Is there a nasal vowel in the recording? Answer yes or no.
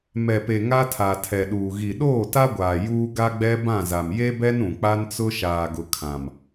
yes